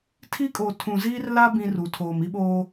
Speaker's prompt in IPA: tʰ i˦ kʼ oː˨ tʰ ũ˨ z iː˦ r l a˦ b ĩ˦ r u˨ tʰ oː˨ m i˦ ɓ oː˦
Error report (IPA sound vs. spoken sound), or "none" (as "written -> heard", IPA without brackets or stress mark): none